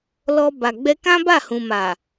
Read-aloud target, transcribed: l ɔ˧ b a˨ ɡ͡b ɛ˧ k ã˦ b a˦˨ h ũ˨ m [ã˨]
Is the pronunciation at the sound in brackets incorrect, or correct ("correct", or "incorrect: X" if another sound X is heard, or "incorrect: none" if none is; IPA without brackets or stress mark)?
incorrect: a˨